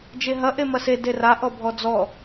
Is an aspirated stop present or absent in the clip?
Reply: absent